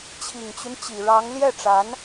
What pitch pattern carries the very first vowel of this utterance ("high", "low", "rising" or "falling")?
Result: low